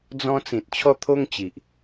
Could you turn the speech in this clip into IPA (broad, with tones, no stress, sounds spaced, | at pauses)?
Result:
d͡z ɔ̃˦ t͡s ĩ˨ t̚ t͡ɕʰ ɔ˦ t̪ʰ o˦ ŋ t͡ɕ i˨ ʔ